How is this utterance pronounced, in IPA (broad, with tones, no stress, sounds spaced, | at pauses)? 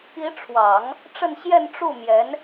i˧˥ ʈ͡ʂʰ w ɑ˨˩˦ ŋ | ʈ͡ʂ ə˥˧ n ɕ j ɛ˥˧ n ʈ͡ʂ u˥˩ m j ɛ˧˥ n